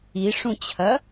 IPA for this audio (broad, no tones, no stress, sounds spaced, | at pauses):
i ʂ ũ t͡ɕʰ ɐ